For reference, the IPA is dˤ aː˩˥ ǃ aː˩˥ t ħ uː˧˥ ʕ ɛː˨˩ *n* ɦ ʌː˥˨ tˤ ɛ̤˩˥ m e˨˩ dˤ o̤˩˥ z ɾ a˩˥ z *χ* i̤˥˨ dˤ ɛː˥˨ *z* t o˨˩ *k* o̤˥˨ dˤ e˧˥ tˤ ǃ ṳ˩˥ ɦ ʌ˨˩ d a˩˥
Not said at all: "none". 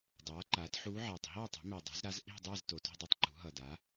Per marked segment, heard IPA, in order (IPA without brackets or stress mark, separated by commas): tˤ, ʔ, z, t